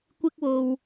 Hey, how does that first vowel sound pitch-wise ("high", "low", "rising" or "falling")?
high